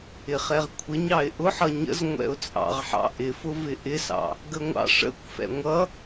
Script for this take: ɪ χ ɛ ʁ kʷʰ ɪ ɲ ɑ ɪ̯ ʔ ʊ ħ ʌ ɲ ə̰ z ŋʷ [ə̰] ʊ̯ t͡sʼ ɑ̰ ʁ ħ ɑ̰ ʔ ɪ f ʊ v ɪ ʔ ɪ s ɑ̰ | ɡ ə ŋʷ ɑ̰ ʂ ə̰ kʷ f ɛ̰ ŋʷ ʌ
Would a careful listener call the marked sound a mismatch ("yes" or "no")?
yes